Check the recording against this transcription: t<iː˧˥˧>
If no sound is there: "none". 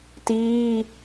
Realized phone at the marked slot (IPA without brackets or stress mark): iː˧˥˧